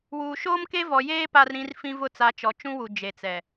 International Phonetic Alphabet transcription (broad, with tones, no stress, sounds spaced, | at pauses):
w uː˨ ʃ oː˦ m k e˦ v ɔ˨ j eː˦ p a˦ r ɾ ĩ˦ r f ĩ˦ v ʊ˦ t͡s a˨˦ t͡ʃ ɔ˨ t͡ʃ ũ˦ w u˨ d͡ʒ e˨ t͡s ɛ˨